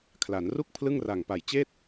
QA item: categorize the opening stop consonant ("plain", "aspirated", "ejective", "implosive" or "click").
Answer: aspirated